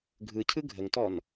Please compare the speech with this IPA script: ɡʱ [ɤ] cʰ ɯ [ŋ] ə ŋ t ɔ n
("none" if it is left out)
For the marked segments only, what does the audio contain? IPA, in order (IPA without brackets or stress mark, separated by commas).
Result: ɯ, ɡʱ